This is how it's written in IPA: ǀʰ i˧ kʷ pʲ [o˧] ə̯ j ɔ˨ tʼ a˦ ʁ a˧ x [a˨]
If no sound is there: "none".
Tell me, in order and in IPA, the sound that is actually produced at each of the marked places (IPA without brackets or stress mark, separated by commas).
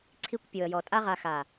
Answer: o˨, a˨